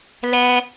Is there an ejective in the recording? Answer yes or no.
no